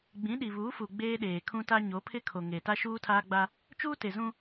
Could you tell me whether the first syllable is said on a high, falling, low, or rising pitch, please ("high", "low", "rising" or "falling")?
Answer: rising